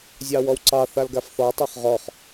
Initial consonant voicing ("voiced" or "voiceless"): voiced